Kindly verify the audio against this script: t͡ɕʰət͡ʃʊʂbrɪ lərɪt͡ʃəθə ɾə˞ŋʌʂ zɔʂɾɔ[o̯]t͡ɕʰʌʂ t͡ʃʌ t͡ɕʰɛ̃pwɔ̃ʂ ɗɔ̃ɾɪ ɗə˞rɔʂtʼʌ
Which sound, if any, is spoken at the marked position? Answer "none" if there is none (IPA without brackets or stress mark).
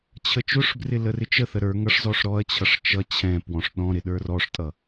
ɐ̯